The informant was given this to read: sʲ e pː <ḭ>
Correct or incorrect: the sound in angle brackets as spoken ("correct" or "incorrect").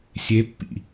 correct